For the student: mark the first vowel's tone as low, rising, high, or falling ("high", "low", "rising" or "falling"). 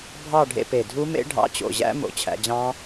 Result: falling